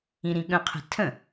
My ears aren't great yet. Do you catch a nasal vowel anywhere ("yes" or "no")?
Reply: yes